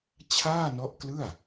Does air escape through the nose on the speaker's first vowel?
no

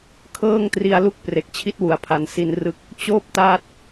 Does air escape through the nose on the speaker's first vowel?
no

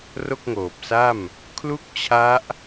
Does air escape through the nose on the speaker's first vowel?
no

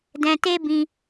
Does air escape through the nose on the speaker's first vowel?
yes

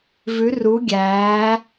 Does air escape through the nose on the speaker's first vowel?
no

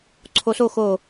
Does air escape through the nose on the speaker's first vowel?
no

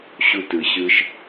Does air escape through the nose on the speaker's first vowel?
no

